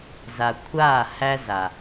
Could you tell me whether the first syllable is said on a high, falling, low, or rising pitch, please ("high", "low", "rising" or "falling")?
low